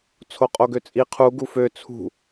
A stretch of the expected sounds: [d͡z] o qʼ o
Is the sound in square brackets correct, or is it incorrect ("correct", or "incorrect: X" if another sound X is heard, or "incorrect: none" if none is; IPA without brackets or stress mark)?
incorrect: t͡sʰ